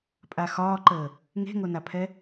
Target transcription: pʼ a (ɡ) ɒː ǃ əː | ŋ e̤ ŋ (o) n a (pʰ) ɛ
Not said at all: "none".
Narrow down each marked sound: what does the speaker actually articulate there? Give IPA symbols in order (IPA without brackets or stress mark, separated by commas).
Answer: x, o, pʰ